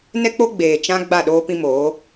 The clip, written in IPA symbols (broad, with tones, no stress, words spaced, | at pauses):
nɛ˦k͡po˦ ɡ͡beː˨t͡ʃã˦ ɡ͡ba˦˨ɗoː˦ pĩ˦ moː˨˦